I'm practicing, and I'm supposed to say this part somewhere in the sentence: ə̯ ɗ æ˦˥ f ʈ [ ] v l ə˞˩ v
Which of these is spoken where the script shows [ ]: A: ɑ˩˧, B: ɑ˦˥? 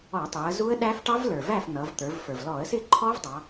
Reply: B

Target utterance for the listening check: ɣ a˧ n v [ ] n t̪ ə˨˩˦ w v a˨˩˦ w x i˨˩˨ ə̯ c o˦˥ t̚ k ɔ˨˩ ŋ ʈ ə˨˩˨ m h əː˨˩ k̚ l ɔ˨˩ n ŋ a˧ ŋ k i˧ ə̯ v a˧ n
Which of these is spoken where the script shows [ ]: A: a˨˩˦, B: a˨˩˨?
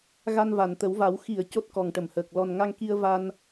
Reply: B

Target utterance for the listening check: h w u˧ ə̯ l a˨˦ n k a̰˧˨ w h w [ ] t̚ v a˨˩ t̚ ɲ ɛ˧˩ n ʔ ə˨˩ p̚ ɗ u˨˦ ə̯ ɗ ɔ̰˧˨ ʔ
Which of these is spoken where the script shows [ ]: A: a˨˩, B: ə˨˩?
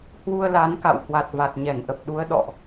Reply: A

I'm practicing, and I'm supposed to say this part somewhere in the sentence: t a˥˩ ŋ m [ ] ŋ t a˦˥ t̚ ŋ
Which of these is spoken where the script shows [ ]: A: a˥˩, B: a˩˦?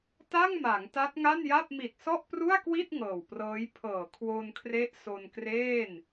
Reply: B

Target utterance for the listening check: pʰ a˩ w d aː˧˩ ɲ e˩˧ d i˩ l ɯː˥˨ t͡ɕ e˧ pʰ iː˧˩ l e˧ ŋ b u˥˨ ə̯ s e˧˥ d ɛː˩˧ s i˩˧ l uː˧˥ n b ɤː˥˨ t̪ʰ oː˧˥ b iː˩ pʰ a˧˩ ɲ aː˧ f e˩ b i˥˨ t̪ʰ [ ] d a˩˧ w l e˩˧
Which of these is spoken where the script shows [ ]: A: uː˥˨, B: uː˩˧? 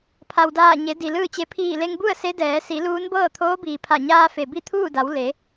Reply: A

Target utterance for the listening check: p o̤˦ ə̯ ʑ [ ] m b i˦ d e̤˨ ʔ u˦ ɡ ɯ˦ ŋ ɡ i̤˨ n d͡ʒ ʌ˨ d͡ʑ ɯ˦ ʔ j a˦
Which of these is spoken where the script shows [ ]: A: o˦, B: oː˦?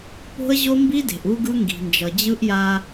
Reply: A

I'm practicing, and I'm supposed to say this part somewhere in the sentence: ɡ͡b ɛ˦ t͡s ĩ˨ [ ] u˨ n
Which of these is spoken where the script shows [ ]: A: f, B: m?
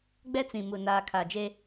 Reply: B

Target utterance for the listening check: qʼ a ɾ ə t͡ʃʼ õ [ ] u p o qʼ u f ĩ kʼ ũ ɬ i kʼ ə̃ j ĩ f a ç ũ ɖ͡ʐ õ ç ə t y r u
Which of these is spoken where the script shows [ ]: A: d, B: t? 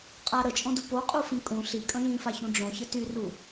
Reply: A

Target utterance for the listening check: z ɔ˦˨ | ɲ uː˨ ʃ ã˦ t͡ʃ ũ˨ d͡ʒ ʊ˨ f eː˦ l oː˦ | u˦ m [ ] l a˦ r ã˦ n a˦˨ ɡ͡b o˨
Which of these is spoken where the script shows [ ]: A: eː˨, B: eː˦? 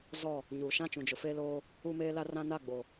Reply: B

